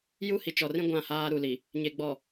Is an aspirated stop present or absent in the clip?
absent